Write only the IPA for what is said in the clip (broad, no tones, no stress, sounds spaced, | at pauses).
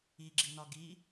i ɡ͡ǁ i n ɒ ɡ i